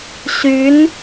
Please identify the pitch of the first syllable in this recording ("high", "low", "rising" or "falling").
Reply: rising